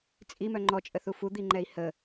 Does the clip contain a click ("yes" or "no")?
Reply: yes